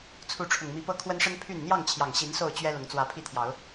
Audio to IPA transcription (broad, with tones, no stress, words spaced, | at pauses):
t͡sʰu˨˦ʈ͡ʂʰʊ˨˩ŋmi˨˦pɤ˥˨ kʰwə˦nʂə˦n pʰy˥˨n n̪jɑ˥˨ŋt͡ɕʰjɑ˨˩ŋɕi˨˦n so˥˨ʊ̯t͡ɕɥɛ˦ lʊ˨˦ŋt͡swä˨˦pʰi˥˨t̪ʰjɑ˨˦ʊ̯